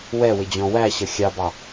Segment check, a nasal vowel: present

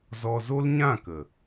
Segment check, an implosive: absent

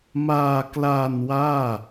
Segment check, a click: absent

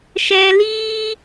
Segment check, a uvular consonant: absent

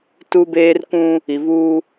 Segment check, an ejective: absent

